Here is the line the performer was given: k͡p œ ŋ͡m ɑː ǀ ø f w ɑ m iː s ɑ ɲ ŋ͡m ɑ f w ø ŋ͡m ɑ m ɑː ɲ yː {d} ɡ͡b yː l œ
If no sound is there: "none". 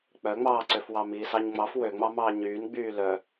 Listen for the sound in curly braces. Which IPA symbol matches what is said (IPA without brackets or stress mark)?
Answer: n